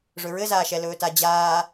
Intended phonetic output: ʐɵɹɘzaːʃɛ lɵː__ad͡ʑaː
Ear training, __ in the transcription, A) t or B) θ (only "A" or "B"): A